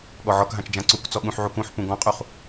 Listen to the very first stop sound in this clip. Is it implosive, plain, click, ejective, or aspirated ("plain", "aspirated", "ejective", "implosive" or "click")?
implosive